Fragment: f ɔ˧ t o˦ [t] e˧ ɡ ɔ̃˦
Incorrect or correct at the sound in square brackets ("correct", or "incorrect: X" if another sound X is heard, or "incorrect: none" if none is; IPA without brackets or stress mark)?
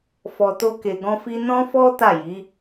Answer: incorrect: k